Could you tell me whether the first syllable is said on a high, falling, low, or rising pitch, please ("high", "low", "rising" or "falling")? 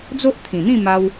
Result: high